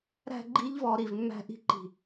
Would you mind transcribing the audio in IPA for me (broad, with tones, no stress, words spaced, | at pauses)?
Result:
ɾæ̤˧ ɡ͡ǃi˦ʎvɔ˧ ɾi˧vmːæ̤˦ ʔi̤˦˨ǃi̤˧